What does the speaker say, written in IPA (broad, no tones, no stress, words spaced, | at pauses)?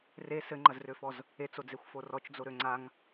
re sɘŋ͡ǃɐzrøfɔz | et͡sod͡zexʷfo rɔt͡ʃd͡zoɾø ŋ͡ǀaŋ